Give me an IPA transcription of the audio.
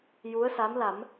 j u˧˥ ə̯ s a˧˥ m l a˨˩˦ m

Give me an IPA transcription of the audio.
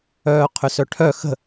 œː qʰ ʏ s œ ʈʰ œ x ə̤

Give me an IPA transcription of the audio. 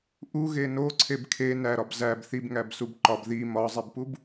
ʔ u ɣ e n o ǀʰ e b kʰ e n æ ɾ ɒ b z æ b θ i b ŋ æ b s u b ǃ ɒ b ð i m ɒ zˤ i b p u b

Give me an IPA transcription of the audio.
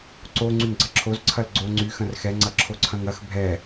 ǀ o ŋ͡ǀ y ŋ ɡ͡ǀ ɐ ǁʰ o z ǀʰ ɐ l ɡ͡ǀ o ŋ͡ǀ y x ɐ̃ r x ɛ ŋ͡ǀ ɐ ǁʰ o ǀʰ ɐ̃ ŋ ɐ x bʱ ɛ

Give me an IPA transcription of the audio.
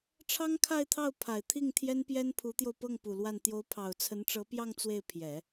ʈ͡ʂʰ ɑ˥ ŋ kʰ a˥˧ ɪ̯ t̪ʰ ɑ˥˩ ʊ̯ pʰ a˨˩ ɪ̯ t̪ʰ i˥˩ ŋ t̪ʰ j ɛ˥ n p j ɛ˥ n pʰ u˧˥ t̪ j o˧ ʊ̯ p ɤ˥˩ ŋ p u˨˩ l w a˥˩ n t̪ j o˧˥ ʊ̯ pʰ ɑ˨˩ ʊ̯ t͡sʰ ə˧˥ n ʈ͡ʂ ɤ˧˥ p j ɑ˥˧ ŋ t͡s w e˥˩ ɪ̯ pʰ j ɛ˨˩˦

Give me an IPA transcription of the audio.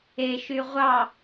e ʃ y ʁʷ ɑ

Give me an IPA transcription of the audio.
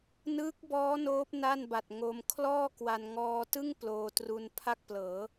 n ɯː˦˥ k̚ b ɔː˦˥ n oː˦˥ p̚ n a˥˩ n b a˨˩ t̚ ŋ o˧ m kʰ l ɔː˥˩ k w a˧ n ŋ ɔː˧ t ɯ˥˩ ŋ p l oː˧ t r u˧ n pʰ a˥˩ k̚ p l ɤː˩˦

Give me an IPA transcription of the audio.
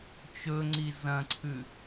t͡ʃ ɵ ŋ͡ǀ i z ɐ̃ ǀʰ ʉ

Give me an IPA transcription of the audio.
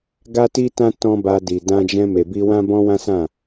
ɡ a˦ t i˦ t ã˦ t ɔ̃˦ b a˧ d i˨ d ã˧ d͡ʒ ɛ̃˧ m e˨ b i˧ w ã˦ b ɔ̃˦ w ã˦ s ã˦˨

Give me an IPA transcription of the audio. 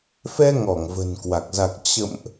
f ɛ˧ ŋ ɔ˧˩ ŋ v ə̤˨˩ n k w a˨˩ k̚ z a˨˩ k̚ t͡ɕ ə̰˧˨ m ʔ

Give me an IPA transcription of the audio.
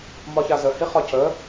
m ɒ ç a z ə h i χ ɒ c ə

